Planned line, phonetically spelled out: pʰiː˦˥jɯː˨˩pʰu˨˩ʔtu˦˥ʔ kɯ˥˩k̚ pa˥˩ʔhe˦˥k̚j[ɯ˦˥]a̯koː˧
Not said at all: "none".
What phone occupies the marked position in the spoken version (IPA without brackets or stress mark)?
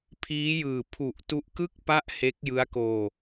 ɯ˦˥